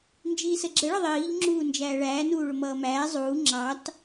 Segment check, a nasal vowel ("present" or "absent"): absent